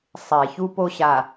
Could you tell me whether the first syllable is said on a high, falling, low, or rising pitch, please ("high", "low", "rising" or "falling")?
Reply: low